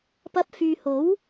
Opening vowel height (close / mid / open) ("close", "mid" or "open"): open